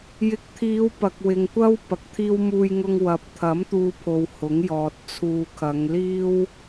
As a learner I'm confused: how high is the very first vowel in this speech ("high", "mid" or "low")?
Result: high